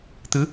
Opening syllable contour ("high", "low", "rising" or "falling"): rising